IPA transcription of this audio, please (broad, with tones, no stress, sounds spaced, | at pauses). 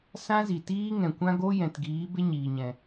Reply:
s ã˦ z i˨ t iː˦ ŋ ɛ̃˨ kʷ ã˦ ɡ o˦ j ɛ̃˨ t ɡ iː˨˦ b e˦ ɲ iː˨ ɲ ɛ̃˨